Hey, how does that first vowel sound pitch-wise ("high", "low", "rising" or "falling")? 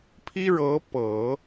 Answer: high